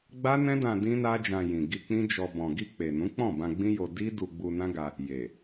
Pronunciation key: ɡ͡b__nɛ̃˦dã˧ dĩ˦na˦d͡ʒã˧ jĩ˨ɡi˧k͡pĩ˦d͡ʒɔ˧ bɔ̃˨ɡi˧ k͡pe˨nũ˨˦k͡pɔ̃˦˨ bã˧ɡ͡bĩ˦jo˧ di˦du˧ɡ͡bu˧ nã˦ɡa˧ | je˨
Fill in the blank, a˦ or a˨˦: a˦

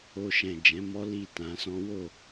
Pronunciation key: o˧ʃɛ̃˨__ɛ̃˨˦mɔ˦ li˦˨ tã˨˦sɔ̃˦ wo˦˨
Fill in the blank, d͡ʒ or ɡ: d͡ʒ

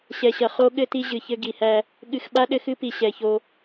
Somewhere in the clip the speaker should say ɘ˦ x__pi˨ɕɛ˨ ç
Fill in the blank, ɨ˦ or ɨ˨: ɨ˦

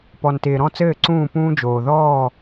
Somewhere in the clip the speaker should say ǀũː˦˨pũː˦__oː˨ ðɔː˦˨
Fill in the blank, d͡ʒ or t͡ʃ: d͡ʒ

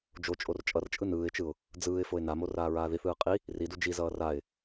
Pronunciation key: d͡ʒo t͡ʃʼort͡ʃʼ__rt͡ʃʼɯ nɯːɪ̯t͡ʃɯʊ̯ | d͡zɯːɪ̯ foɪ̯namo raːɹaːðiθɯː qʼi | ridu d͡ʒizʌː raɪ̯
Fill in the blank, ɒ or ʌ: ʌ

